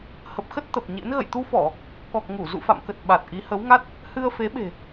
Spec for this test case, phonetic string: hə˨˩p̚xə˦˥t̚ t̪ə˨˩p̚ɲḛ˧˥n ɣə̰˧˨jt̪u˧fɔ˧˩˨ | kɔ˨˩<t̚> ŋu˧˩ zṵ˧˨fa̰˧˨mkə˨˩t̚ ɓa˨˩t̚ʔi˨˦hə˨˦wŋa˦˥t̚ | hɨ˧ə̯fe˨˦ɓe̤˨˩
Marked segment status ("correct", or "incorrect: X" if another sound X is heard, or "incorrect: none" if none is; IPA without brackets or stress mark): incorrect: k̚